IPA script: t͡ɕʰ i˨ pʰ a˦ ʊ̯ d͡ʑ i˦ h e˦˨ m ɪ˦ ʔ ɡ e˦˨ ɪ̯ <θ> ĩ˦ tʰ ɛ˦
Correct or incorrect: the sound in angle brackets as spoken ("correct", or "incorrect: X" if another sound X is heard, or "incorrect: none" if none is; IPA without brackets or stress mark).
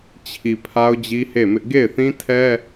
correct